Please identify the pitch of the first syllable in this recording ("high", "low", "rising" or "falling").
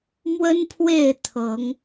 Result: high